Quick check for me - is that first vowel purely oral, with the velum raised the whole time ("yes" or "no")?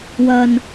yes